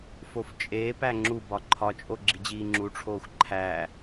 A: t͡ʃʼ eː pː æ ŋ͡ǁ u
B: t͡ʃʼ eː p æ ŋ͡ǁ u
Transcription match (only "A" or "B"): B